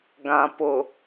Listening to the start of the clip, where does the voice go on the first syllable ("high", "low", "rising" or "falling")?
low